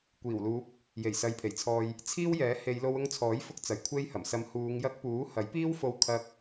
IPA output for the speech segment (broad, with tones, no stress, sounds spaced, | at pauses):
kʷ iː˨˩ w l uː˨˥ p̚ | j e˨˩ j s ɐ˨ j pʰ e˨˩ j t͡sʰ ɔː˨ j | t͡sʰ iː˥ w j ɛː˨˥ h e˨˧ j l o˧ w ʊ˧ ŋ t͡sʰ ɔː˨˥ j f ʊ˧ k̚ t͡s ɐ˨ j kʷʰ e˥ j h ɐ˨˩ m s ɐ˨˧ m h uː˨˧ ŋ j ɐ˧ k̚ p uː˨˥ h ɐ˨˥ j p iː˥ w f o˧ w kʰ ɐ˧ k̚